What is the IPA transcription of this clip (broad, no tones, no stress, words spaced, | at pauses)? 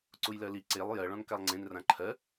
ǀujlɜli ǀelˠ jɜ ɭɔ̃nkalˠŋ͡ǀẽn rãǃʰɜ